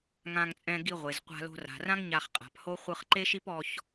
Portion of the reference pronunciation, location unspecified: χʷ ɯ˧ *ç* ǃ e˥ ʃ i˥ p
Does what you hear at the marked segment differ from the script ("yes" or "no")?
yes